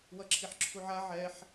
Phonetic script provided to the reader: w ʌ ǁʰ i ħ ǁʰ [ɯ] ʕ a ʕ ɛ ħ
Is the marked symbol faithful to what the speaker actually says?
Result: no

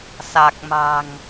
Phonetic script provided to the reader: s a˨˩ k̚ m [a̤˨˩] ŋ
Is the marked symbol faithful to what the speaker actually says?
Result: yes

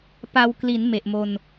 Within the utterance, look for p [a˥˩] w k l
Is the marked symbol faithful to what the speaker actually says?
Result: no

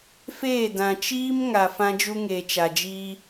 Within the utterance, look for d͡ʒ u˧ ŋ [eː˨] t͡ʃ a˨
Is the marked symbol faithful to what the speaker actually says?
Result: yes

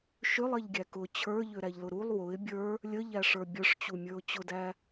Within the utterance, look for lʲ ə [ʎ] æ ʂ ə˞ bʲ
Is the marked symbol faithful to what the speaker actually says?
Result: yes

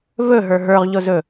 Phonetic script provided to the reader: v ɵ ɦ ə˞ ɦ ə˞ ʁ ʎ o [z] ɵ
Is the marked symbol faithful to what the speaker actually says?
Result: yes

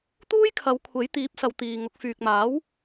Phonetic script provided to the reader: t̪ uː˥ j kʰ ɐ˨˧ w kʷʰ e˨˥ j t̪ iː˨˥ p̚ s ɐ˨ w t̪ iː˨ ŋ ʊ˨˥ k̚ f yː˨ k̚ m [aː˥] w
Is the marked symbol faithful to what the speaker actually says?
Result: no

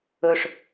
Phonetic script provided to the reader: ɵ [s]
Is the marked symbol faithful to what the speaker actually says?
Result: no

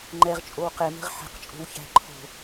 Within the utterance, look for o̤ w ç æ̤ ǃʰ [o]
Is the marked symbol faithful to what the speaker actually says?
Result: no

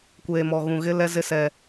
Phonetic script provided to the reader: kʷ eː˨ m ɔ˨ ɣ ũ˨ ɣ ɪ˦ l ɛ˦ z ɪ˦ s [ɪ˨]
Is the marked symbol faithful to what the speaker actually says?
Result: no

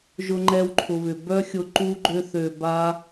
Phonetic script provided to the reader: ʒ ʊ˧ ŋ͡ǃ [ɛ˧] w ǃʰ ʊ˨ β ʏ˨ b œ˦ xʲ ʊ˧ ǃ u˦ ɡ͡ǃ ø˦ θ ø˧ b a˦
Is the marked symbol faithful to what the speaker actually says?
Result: yes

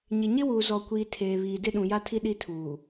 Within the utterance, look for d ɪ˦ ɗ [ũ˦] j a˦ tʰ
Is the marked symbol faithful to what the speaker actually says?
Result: no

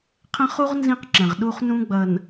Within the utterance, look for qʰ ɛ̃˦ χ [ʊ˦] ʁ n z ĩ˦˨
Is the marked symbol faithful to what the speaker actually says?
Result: no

